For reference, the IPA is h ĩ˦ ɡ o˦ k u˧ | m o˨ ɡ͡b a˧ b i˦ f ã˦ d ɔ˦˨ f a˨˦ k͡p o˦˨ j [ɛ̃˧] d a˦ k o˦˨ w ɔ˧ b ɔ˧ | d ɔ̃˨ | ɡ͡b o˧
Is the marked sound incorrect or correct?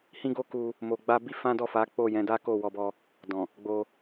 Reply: incorrect